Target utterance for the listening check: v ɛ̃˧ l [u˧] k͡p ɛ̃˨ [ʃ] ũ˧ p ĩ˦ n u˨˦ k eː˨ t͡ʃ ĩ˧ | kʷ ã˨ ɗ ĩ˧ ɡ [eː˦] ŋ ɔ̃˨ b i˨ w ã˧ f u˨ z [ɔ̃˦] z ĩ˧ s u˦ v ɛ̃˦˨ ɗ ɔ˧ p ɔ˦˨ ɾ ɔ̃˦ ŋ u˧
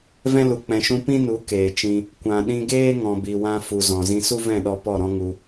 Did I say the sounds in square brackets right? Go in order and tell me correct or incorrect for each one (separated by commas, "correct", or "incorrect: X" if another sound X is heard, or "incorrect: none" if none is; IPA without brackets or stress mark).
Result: incorrect: u˨, correct, correct, incorrect: ɔ̃˨